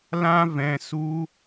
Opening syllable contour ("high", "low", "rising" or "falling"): high